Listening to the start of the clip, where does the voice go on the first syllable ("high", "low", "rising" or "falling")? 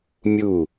falling